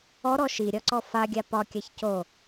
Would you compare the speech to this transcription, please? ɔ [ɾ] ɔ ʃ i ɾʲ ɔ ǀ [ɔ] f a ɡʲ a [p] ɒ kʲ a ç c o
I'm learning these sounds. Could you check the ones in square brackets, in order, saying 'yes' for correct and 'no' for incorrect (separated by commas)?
yes, yes, yes